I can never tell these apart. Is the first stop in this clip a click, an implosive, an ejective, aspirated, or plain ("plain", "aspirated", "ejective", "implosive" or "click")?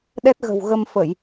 implosive